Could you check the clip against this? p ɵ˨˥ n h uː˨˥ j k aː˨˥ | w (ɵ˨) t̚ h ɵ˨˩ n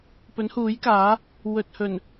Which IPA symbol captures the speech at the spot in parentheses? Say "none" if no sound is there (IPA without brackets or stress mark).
ɵ˨